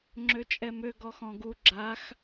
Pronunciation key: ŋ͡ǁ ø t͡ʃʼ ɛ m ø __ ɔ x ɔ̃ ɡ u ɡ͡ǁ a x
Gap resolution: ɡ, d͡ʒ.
ɡ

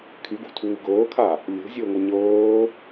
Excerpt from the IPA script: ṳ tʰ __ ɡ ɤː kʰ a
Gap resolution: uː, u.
uː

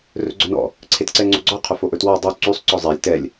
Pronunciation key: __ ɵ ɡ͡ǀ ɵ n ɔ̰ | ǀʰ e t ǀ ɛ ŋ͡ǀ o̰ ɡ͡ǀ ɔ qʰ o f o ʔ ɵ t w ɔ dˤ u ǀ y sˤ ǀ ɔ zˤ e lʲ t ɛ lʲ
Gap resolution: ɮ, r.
r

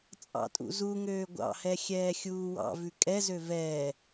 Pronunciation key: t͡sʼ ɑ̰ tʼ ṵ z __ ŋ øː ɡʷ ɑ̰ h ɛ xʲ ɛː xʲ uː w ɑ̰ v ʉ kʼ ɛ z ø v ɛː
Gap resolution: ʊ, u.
u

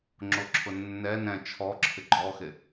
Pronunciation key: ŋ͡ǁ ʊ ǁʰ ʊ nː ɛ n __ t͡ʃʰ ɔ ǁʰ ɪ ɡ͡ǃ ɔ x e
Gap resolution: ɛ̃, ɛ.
ɛ̃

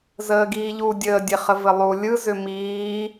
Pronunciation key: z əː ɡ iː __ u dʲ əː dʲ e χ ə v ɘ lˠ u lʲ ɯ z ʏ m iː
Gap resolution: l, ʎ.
ʎ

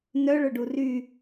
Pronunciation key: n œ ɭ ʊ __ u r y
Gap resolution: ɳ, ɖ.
ɖ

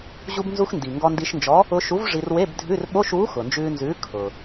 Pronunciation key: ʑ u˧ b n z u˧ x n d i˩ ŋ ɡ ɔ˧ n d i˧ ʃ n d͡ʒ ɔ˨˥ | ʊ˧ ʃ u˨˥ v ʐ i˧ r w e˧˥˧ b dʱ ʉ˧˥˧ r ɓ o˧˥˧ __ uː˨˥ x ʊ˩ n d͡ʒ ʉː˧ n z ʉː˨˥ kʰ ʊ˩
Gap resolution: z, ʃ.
ʃ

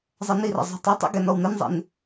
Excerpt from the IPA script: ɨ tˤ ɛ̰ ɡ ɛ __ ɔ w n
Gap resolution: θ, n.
n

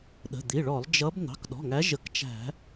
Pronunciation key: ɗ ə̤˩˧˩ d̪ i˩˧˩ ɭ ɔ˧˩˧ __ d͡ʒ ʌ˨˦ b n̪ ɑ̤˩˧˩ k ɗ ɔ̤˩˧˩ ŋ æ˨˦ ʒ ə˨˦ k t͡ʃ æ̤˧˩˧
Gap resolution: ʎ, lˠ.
lˠ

